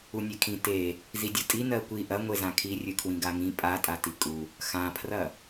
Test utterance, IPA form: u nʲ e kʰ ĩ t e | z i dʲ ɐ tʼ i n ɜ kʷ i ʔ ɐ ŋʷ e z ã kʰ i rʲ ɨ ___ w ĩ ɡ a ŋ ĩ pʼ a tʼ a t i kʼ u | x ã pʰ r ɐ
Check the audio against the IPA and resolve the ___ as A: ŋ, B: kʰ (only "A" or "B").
B